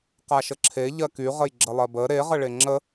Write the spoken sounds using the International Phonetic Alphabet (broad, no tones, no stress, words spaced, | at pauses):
qaʃəǁʰe ʎɜky ʁəjɡ͡ǁəlˠɜbə ɾe ʁəɭeŋ͡ǁə